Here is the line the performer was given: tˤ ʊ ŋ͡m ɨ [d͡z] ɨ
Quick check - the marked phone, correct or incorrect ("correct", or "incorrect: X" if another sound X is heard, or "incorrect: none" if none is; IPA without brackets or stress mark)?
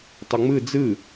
correct